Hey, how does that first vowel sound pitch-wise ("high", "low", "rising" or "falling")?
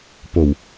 low